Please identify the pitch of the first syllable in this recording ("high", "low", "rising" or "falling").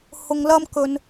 low